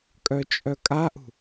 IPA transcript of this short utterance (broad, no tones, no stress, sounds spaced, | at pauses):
kʼ œ t͡ʃʼ œ kʼ a ʔ ṳ